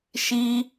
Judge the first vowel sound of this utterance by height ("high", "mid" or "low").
high